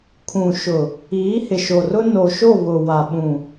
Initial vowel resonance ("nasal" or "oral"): nasal